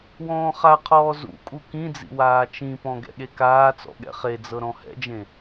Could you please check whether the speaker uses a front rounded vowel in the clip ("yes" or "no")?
no